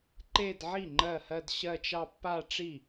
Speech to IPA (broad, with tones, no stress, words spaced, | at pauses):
ǃe˥˧dʕi˥˩ ŋ͡ǃɜ˥˩hɜ˥˧dɕɜ˥˧t͡ʃɑ˥˧ pːa˥˧ʈ͡ʂi˥˩